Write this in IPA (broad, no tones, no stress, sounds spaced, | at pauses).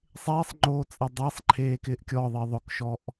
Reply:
sˤ eː sˤ ŋ͡ǃ oː t͡sʼ ɛ dˤ e sˤ ǃʰ eː k ɪː ʔ kʲ ɔ ðˤ ɪː ðˤ ʊ k ʃ ɔ ʔ